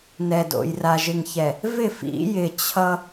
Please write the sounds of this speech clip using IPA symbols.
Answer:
n ɛ˨ d o̰˨ j r a˨ ʒ ɪ˨ ŋ ç ɛ˨ | v ɪ˦˨ f ḭ˨˦ j ɪ˨ t͡ɕʰ ʌ˦

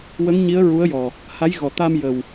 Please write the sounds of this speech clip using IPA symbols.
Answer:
w ə˧˥ ŋ ɲ i˧˥ ə̯ ɹ u˧˥ ə̯ j ɔ˨˩ | h a˧˥ j ɣ ɔ˨˩ t̪ a˧ m j ə˨˩ w

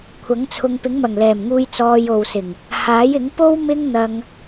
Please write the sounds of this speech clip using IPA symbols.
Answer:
kʷʰ ɐ˨˥ ŋ t͡sʰ ʊ˧ ŋ p ɪ˨˥ ŋ m ɐ˨˩ ŋ l ɛː˨˩ m ŋ uː˧ j t͡s ɔː˧ j o˨ w s ɪ˨˩ ŋ | h aː˨˥ j ɪ˨˥ ŋ p o˥ w m ɪ˥ ŋ n̪ ɐ˧ ŋ

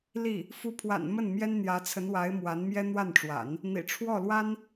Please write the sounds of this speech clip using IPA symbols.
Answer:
l i˥˩ | f u˧˥ pʰ w a̰˨˩ n m ə˥˩ n m j ɛ˥ n n̪ j ä˧˥ t͡sʰ ə˧˥ n w a˧˥ ɪ̯ m w a˧˥ n m j ɛ˥ n̪ w a˥˩ n ʈ͡ʂ w a̰˨˩˦ n | n̪ ḭ˨˩ ʈ͡ʂʰ w ɔ˥˩ l w a˥ n

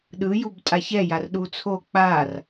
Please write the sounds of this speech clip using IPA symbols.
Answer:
ɗ ɯ j u b tʼ a ç ɛ j a r ɗ u t͡sʰ o k͡p a r

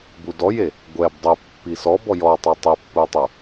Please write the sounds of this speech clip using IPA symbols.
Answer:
b u d ɔ j e | ɡʷ ɛ b dˤ ɛ pː i s ɔ b ɔ j ɔ tˤ a tˤ e pː u tˤ u

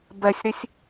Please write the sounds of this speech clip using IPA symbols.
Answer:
b ɛ sʲ ɾ i sʲ

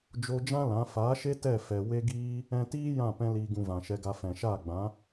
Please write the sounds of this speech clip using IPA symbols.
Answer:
d͡ʒ o˧ d͡ʒ ã˦ l ã˨˦ f aː˨˦ ʃ e˦ t ɛ˦˨ f ɛ˨ w e˦ ɡ iː˦ | ɛ̃˧ t iː˦ j ã˦˨ p ɛ̃˧ l iː˨ ɡ ũ˨ v ã˨ ʃ ɛ˧ ɡ a˧ f ɛ̃˨ ʃ aː˦˨ ɡ͡b ã˨˦

